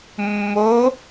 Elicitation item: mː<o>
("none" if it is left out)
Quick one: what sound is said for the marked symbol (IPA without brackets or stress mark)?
o